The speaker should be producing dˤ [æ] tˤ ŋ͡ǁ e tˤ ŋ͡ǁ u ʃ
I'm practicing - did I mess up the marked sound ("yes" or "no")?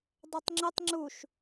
yes